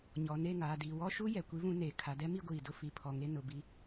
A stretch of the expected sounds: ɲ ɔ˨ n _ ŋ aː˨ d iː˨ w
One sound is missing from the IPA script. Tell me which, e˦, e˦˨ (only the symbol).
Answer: e˦˨